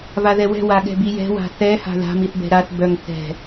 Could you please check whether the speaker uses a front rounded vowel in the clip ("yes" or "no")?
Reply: yes